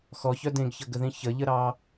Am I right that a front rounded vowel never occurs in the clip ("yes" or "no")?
no